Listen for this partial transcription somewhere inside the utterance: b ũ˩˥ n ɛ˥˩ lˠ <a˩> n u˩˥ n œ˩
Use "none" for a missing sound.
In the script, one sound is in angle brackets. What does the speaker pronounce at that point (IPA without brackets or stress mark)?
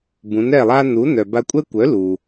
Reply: a˥